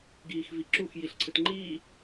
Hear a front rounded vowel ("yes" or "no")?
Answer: no